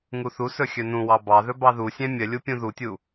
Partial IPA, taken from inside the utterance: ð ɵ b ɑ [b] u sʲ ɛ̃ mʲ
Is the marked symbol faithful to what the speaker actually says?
no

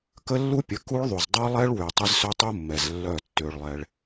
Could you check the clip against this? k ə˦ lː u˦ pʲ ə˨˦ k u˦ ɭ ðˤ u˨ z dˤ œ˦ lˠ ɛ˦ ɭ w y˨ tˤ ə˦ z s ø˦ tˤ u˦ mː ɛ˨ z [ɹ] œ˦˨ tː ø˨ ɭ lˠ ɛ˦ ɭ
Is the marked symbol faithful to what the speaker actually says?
no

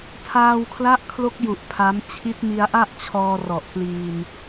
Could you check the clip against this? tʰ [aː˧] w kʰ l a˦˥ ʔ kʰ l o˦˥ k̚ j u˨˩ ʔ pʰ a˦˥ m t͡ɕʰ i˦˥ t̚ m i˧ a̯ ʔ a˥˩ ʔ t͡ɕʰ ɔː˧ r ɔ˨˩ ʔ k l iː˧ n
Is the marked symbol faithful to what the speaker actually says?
yes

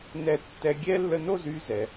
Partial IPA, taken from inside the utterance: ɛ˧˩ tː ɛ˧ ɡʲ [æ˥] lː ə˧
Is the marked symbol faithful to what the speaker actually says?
no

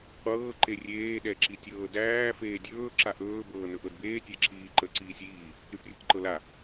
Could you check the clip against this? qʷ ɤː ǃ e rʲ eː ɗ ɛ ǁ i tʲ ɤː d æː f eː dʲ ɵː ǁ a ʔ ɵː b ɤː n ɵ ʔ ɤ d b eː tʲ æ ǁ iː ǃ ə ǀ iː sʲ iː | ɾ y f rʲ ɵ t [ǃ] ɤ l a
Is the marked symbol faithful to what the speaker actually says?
yes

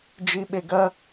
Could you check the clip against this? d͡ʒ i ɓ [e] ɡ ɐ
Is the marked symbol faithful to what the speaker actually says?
yes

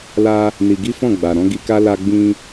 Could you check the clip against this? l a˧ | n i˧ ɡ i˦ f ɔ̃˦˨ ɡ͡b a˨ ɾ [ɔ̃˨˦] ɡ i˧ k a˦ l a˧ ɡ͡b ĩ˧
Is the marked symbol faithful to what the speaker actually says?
yes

